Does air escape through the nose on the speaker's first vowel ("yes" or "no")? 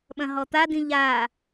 yes